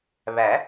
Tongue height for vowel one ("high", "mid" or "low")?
low